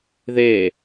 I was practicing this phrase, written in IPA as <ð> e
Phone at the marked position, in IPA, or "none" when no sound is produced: ð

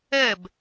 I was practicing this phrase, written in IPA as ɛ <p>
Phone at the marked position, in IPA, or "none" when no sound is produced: b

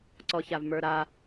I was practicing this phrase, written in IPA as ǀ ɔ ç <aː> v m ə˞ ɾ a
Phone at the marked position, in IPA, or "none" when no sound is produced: a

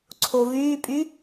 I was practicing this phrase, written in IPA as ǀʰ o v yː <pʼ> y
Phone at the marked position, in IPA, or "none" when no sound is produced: pʼ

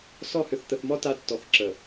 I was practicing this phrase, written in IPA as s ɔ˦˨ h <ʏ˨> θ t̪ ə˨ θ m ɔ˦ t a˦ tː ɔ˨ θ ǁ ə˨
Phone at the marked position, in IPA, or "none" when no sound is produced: ʏ˨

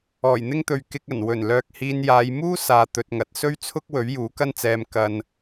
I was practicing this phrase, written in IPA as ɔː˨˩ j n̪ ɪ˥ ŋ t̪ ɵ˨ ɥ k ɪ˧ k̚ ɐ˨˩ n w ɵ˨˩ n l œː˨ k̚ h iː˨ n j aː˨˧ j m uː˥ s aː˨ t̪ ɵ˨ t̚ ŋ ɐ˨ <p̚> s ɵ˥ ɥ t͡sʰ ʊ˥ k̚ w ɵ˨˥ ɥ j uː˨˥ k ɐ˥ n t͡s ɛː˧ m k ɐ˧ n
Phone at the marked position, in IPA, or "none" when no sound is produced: t̚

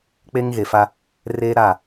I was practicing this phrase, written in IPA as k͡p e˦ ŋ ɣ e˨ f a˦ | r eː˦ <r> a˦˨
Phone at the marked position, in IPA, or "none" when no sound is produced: ɾ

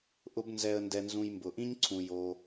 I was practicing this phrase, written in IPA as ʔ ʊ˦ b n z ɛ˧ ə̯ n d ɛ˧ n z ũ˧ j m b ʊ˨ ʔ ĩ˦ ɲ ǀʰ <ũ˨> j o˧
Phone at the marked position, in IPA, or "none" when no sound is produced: ũ˧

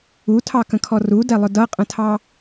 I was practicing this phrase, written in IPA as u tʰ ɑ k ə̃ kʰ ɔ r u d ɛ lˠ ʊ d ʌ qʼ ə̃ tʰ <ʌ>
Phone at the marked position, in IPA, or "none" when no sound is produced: ɑ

